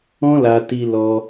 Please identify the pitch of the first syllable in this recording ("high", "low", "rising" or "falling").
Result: high